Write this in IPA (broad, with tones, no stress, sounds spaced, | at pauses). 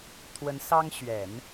t̪ʰ w ə˧˥ n s ɑ˥ ŋ ɕ ɥ ɛ˨˩˦ n